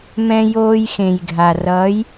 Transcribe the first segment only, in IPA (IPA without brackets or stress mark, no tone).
m